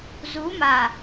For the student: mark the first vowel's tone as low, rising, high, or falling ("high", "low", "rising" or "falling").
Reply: rising